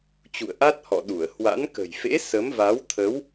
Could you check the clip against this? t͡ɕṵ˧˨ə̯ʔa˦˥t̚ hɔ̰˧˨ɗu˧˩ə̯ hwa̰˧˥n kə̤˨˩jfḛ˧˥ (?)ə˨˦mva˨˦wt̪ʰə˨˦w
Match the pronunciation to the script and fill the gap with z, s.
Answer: s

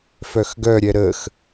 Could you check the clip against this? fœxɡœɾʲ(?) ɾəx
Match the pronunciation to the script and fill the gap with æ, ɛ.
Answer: ɛ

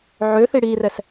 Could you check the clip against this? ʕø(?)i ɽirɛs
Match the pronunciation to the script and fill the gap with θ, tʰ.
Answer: θ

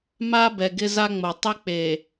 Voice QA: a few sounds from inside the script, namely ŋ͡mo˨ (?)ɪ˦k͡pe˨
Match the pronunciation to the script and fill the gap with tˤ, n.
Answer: tˤ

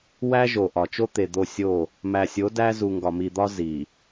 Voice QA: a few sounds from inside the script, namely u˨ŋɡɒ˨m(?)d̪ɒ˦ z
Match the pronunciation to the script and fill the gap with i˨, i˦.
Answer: i˨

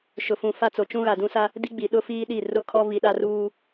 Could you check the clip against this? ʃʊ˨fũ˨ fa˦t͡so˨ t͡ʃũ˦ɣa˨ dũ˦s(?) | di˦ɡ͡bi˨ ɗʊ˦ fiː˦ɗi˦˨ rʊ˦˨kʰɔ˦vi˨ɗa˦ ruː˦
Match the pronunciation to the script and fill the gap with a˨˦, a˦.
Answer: a˦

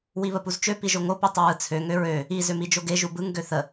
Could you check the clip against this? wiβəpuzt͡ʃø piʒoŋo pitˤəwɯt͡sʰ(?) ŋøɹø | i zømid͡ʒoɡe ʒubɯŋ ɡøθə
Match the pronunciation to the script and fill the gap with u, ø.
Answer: ø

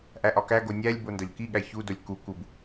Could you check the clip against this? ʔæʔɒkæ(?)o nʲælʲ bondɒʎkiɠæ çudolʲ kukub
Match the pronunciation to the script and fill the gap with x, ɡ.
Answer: ɡ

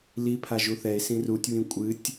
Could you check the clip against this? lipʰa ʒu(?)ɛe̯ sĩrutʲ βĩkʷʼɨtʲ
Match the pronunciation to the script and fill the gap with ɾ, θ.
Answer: θ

